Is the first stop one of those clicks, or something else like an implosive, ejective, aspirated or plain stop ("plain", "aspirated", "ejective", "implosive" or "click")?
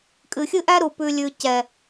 ejective